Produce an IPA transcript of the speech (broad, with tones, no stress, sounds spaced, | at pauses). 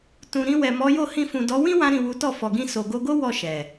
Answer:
t ũ˨ ɾ ĩ˧ w ɛ˨ m ɔ˨˦ j o˦˨ h ĩ˧ f ũ˨ d ɔ˨˦ w ĩ˦ w ã˧ ɾ ĩ˨ w u˨˦ t ɔ˦˨ f ɔ˨ ɡ ĩ˧ s o˨ ɡ o˧ ɡ o˦ w ɔ˦˨ ʃ ɛ˨